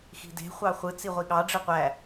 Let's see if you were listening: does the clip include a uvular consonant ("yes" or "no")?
yes